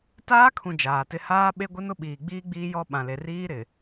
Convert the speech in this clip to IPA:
taː˦kʰũ˨ d͡ʒaː˨tɪ˦ haː˦ ɓe˦ɡʷɪ˦nʊ˦ ɓiː˨ɡ͡biː˦ɡ͡biː˦ jɔ˦ɓã˨le˨ riː˦ɾɪ˨

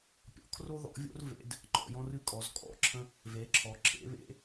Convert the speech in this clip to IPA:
pʲɔ̰˩˥kʰro˦ ðɔ̰˩˥vʲo̰˦rvḛ˩˧d | ŋ͡ǃɔ̰˩˧jɔ̃˦rɨ˦kʼɔ˩˧z kʼɔ̰˧˩ǁʰə̃˦ | ve˩˥ǁʰɔ˩˧ǁʰḛ˩˥βḛ˩˥

